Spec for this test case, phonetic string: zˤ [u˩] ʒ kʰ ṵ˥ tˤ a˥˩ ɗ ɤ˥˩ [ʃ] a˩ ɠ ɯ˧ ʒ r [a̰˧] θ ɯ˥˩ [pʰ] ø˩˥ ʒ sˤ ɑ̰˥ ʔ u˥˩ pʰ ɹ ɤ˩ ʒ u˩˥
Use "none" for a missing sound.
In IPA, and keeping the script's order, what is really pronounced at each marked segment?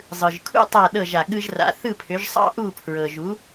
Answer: ɯ˩, ʒ, a̰˩˥, pʰ

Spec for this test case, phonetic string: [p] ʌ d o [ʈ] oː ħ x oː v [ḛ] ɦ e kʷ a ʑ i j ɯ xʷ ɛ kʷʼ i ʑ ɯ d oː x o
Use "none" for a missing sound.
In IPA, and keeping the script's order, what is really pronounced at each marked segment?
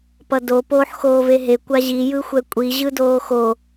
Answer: p, p, e

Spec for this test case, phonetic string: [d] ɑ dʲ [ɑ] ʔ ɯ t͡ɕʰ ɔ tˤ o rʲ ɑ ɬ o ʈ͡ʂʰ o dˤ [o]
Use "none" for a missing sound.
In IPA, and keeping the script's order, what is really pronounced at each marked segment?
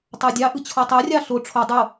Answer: tˤ, ɑ, o

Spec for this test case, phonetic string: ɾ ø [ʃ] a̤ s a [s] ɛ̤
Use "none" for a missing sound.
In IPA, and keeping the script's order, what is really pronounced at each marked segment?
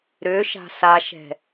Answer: ʃ, ʃ

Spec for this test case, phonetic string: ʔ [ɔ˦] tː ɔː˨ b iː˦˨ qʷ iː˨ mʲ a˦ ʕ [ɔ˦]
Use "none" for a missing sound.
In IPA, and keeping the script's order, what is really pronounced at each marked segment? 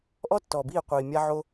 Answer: ɔ˦, o˦

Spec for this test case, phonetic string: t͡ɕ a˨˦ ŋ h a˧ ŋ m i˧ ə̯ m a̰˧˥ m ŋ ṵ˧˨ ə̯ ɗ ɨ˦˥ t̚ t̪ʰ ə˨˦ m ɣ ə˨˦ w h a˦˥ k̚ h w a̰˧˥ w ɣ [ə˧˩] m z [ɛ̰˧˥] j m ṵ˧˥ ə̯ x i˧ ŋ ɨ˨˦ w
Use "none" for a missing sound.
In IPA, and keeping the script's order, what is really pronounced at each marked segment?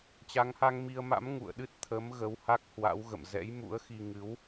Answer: ə̰˧˨, ɛ̰˧˥

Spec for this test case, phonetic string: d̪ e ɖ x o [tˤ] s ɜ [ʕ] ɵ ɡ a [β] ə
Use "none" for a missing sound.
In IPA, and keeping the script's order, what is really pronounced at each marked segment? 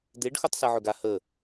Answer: tˤ, ʕ, h

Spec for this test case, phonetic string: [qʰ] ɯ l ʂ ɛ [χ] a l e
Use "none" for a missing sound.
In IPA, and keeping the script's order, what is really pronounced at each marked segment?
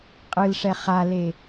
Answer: qʼ, χ

